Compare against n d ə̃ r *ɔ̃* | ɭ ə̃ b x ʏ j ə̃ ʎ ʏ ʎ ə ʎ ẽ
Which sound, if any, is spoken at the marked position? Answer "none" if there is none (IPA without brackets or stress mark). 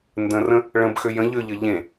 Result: ə̃